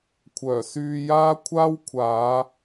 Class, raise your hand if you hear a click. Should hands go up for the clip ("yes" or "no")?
no